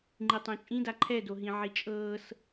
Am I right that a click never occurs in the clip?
no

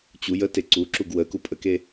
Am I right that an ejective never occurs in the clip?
no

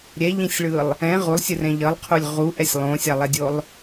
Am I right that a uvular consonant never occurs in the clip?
no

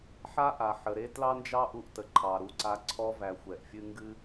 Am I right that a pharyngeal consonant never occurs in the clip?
no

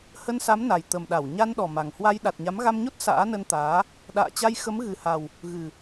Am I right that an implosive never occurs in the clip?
no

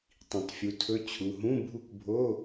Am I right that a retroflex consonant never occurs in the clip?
yes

